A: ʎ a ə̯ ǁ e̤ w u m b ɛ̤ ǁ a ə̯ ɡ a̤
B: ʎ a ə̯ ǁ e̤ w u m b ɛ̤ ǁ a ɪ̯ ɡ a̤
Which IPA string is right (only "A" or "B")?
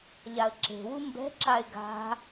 B